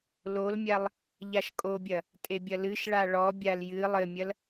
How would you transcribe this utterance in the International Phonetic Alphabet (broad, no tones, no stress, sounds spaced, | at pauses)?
l o l mʲ a lˠ | ʎ a ʃ kʼ o bʲ ɐ | tʼ e bʲ ɐ l ɨ ʃ ɭ a ɭ ɔ bʲ a l j ɨ lˠ ɘ mʲ ɐ l